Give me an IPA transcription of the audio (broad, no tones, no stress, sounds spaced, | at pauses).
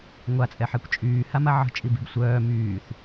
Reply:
ŋʷ a t͡sʼ ɛ ħ ɛ kʷ t͡ʃʼ yː h a m a ʕ ə̤ t͡ʃʼ i b i̤ b sʷ œː m yː θ